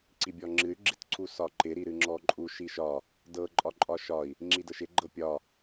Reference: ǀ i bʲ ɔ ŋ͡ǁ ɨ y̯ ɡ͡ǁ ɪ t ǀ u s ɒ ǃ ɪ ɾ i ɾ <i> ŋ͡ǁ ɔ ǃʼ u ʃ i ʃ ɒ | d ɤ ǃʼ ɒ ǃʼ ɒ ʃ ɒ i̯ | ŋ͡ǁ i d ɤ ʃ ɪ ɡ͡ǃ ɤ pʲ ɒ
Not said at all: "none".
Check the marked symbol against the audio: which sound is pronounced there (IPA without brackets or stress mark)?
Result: ɨ